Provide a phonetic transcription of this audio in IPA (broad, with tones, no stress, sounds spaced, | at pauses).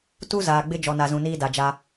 t u˦ z aː˨ ɡ͡b ɪ˦ d͡ʒ ɔ˨ n a˨ z ũ˨ n iː˦ d a˨ d͡ʒ a˦